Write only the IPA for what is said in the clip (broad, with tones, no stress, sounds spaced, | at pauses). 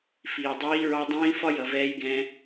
f iː˩ dˤ iː˧˥ ɹ ɑ˧ dˤ ĩː˧˥ f ɒ˥ j ʌ˩ v ɛː˧˥ j ɡ ɛ̃˧